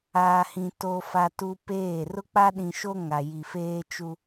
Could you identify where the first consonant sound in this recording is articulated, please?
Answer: glottal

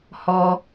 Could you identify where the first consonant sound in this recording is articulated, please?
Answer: glottal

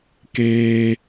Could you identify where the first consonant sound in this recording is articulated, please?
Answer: velar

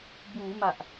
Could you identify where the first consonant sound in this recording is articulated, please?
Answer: labial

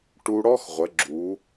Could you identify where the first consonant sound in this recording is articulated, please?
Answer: retroflex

